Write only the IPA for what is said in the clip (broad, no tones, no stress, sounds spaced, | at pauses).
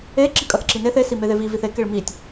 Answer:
e ǁ i kʼ ɐ θ ǁ i n e θ e s i m e ð e v i v i θ e k e ɭ m i tʲ